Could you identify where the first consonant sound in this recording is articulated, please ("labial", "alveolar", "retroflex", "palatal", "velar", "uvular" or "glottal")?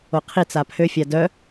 uvular